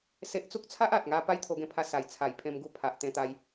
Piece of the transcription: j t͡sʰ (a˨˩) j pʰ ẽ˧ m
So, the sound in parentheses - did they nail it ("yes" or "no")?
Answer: yes